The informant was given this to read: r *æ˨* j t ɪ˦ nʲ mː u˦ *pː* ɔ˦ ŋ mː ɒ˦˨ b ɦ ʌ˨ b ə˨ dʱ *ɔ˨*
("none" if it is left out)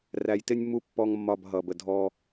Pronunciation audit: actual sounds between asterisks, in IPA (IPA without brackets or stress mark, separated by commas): æ˨, pː, ɔ˦